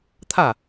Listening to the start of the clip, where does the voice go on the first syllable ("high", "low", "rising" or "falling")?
falling